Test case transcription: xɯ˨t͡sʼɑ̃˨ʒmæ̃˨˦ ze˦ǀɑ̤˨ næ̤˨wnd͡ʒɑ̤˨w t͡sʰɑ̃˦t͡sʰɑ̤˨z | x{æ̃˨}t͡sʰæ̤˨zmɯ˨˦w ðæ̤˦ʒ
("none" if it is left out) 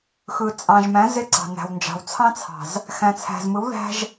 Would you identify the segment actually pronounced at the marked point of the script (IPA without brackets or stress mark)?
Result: æ̃˨